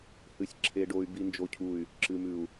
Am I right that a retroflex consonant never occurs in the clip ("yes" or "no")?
no